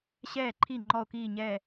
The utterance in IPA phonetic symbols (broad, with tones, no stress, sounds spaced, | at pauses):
ɕ ɛː˧˩ ǃʰ i˧˩ ŋ͡ǃ ɔ˧˩ o̯ k iː˧˩ ɲ ɛː˧˩